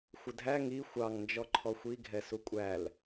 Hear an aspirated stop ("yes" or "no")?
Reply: yes